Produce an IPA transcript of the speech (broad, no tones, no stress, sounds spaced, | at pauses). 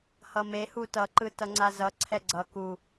h ʌ m e h u t ʌ ǃ ɯ t ʌ ŋ͡ǀ a z ʌ ǀʰ ɛ ɡ͡ǀ ʌ k u